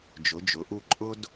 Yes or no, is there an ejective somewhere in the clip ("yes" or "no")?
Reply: yes